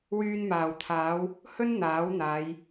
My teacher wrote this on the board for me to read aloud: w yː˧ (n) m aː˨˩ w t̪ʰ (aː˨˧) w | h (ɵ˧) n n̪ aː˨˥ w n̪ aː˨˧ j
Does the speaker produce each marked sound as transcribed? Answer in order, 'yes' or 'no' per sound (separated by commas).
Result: yes, yes, no